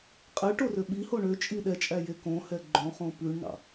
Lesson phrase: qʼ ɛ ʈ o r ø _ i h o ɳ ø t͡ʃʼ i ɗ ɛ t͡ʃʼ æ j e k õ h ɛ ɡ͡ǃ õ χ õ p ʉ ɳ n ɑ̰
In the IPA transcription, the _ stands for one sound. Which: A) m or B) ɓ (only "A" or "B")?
B